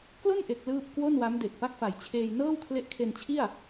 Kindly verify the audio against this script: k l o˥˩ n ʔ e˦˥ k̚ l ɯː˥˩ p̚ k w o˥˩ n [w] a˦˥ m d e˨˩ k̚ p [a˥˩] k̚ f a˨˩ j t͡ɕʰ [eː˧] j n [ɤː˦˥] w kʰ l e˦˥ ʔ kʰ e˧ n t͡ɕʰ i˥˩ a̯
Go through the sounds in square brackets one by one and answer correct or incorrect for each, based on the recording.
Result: correct, correct, correct, incorrect: ɤː˥˩

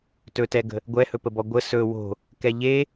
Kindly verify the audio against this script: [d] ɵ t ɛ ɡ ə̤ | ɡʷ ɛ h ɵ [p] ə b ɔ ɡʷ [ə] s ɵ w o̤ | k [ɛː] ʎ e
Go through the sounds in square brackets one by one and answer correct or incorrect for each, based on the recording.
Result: incorrect: t, correct, correct, incorrect: ɛ

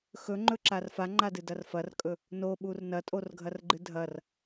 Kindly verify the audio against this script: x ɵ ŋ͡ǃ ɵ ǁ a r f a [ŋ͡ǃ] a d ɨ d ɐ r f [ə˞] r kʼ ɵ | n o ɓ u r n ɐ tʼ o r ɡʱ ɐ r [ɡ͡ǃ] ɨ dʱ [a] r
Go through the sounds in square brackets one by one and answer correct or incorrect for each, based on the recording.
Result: correct, incorrect: ɐ, correct, incorrect: ɐ

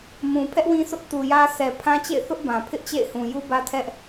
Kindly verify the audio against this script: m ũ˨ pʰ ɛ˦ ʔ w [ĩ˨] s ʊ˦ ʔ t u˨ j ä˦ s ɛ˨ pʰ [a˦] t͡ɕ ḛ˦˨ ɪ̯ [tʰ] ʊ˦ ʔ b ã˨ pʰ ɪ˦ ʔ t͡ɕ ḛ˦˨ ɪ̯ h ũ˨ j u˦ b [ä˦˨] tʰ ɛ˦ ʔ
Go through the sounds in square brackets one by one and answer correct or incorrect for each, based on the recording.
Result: incorrect: ĩ˦, incorrect: ã˦, incorrect: θ, incorrect: ä˦

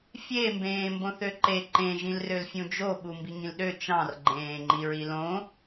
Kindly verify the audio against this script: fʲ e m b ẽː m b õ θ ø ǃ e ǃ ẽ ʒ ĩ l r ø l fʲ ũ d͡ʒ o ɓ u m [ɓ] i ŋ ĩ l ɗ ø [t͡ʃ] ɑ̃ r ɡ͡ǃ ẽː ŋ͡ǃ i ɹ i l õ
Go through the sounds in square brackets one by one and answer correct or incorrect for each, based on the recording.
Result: incorrect: b, correct

